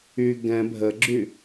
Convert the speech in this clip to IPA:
y ɡ ɛ̃ bʱ ə ɡ͡ǁ y

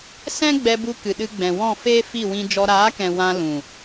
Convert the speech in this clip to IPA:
s ɛ̃˦ ɡ͡b ɛ˧ b u˧ k ɨ˨ ɗ ɨ˧ ɡ͡b ɛ̃˨ w ɔ̃˦˨ f eː˦ f i˦˨ w ĩ˧ d͡ʒ ɔ˧ ɾ aː˨˦ k ɛ̃˨ w ã˧ l ũ˨

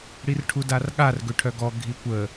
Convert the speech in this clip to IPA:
ɽ i r ʈʰ u d a r ɠ a r ɡ ø ʈʰ œ ɡ ɔ ɡʱ i kʷ ə

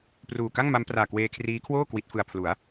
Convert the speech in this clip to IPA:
p r uː˨˩ k a˥˩ ŋ m a˦˥ m p r aː˨˩ k w eː˧ kʰ r iː˦˥ kʰ w oː˥˩ k w i˦˥ t̚ f ɯ˧ a̯ pʰ l u˩˦ a̯

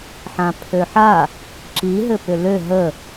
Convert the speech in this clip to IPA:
ħ ã pʰ ø ħ a | ǁ i ɦ ɘ p ʏ l ø ɦ ə

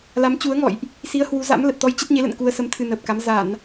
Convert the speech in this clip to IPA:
l a˨˦ m t͡ɕ u˨˦ ə̯ ŋ ɔ̰˧˨ j ʔ | s i˨˦ ə̯ h w u˨˦ z a̰˧˥ m l ə˨˩ t̚ t̪ ɔ˧ j t͡ɕ ə˦˥ t̚ ɲ e˨˦ l ə̰˧˨ n k u˧ ə̯ s ə˨˦ m t̪ʰ ɨ˧ n əː˨˩ p̚ k a˨˦ m z a˧˩˨ n

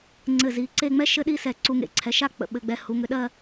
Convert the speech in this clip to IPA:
ŋ͡ǀ ɘ˧˩ z i˩˧ ǀ e˥˧ ŋ͡m ɛ˥ ʃ ɘ˥ ɗ i˥ s ɛ˧˩ ǀ u˧ ŋ ḛ˧˩ ǀʰ ɛ˩˧ ʃ a˥ k͡p ə̰˧ ɓ ɘ˧ ɡ͡b ɛ˧ h u˩˧ ŋ ʏ˧ ɗ ɜ˥˧

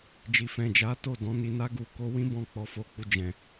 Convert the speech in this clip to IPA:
d͡ʒ i˨ f ɛ̃˨ d͡ʒ a˨˦ t o˦˨ d ɔ̃˨˦ n i˧ n a˦ ɡ u˧ k o˦ w ĩ˦ b ɔ̃˧ k͡p ɔ˨ f o˨ k͡p u˨ d͡ʒ ɛ̃˨

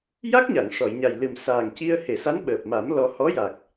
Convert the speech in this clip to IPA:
j a˦˥ k̚ ɲ a˨˩˨ ŋ ʂ ɔ˨˩˨ j ɲ a˨˩ j l ɨ˨˩ m s aː˨˩ ŋ c i˧ ə̯ h e˨˩˨ s a˧˥ n ɓ əː˨˩ p̚ m a˨˩˦ m l ɔ˧ h ɔ˧˥ j a˨˩ k̚

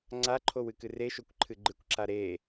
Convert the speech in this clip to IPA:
ŋ͡ǀ a ǃʰ o w ɨ k ɨ r e ʃ o kʷ ǃʰ ɨ ɡ͡ǃ ɨ kʷ ǁ a ɾ e

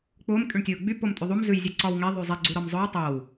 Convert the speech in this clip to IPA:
k͡p ʊː m kʼ y ɳ tʲ ʊː ɡ͡b y p o m tʼ y ðˤ u m z ʉ j zʲ ʉ ǀ ɒ w ŋ e ðˤ ʉ zˤ e ɡ͡ǀ u ɾ ɒ m zˤ ʊ j tˤ o w

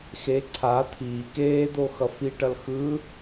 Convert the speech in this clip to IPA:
x e ǀʰ a t̪ʰ iː k eː d̪ o x ʌ f i ʈ ʌ l x ɯ

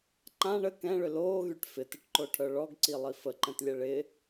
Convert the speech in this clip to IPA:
ǃ ã ɳ ə k ɛ̃ ɭ ʏ l oː ɣ y ʈ f ɪ t ɪ ʈ ǃ o ʈʰ œ ɭ ɔ ɡ ǀ i lˠ i f ə ǃ ɛ̃ t lʲ ɛ ɭ ɪ

